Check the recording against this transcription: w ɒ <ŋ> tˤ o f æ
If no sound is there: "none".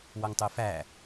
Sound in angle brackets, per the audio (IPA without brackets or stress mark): ŋ